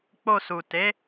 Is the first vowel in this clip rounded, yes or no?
yes